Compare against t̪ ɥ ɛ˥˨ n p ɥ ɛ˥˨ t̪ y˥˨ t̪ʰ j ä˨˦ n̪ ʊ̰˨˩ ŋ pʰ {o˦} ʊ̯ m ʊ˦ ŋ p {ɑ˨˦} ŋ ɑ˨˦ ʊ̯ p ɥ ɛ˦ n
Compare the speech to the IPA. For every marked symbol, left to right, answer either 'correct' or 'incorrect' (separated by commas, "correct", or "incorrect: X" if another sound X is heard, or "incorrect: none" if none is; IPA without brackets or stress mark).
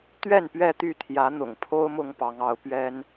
correct, correct